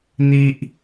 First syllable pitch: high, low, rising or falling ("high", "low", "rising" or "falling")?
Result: high